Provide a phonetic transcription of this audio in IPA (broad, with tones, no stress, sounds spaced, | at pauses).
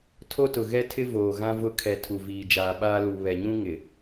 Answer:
tʰ o˦ t ʊ˨ ɣ ɛ˦ tʰ ɪ˦ v oː˨ ɣ ã˦ v ʊ˦ kʰ ɛ˨ tʰ u˨ v iː˨ d͡ʒ aː˨ ɓ aː˦ l u˨ β ɛ˨ ɲ ũ˦ ŋ ɪ˨